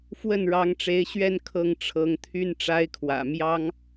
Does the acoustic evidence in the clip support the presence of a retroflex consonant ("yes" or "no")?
yes